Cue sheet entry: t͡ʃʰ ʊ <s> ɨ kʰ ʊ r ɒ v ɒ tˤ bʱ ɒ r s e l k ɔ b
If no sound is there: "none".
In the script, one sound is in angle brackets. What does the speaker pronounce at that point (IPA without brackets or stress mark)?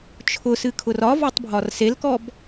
s